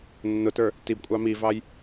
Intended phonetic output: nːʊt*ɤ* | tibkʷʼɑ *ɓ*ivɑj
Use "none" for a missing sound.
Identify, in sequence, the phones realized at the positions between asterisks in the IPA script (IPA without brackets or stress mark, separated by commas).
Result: ə˞, m